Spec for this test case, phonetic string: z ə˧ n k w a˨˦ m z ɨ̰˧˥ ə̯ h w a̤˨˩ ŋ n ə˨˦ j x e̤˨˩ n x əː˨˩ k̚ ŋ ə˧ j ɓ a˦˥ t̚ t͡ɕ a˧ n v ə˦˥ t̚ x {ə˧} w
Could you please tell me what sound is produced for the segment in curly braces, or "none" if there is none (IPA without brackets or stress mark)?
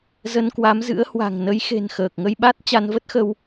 ə˧